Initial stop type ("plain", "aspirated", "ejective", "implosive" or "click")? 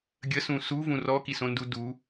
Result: plain